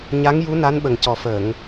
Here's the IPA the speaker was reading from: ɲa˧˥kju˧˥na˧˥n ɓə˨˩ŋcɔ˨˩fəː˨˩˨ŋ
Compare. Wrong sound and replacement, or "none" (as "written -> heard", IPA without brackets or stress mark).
k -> ŋ